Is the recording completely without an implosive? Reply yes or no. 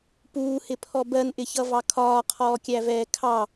yes